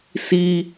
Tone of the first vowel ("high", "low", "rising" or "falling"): high